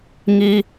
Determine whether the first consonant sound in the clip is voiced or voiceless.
voiced